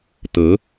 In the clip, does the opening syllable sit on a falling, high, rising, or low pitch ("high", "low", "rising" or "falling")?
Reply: rising